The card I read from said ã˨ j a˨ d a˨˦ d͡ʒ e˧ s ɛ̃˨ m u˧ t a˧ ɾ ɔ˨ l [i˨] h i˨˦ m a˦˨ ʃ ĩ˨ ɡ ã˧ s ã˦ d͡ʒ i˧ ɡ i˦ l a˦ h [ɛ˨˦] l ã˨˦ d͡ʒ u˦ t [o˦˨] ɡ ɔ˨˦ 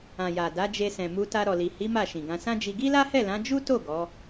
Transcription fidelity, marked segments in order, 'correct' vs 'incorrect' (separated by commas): correct, incorrect, correct